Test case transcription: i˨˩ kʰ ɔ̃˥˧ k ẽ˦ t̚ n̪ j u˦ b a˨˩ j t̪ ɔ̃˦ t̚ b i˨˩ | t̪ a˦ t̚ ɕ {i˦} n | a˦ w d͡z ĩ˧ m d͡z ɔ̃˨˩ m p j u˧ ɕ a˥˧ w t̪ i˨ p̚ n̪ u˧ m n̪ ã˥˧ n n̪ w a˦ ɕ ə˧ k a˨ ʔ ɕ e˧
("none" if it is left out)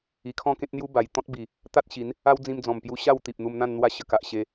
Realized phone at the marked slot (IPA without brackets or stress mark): i˨˦